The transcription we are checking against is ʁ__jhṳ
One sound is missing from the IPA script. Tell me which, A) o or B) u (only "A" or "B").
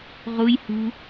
B